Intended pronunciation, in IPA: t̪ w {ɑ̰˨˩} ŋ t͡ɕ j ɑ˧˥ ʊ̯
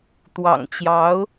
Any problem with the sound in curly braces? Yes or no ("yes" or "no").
no